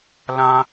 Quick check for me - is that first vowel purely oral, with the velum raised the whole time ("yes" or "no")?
no